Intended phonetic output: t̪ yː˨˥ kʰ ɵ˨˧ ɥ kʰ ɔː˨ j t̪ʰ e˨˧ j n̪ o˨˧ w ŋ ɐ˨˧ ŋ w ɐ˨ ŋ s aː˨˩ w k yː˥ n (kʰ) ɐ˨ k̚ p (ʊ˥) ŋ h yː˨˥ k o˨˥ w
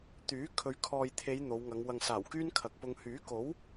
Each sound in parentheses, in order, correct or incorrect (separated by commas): correct, incorrect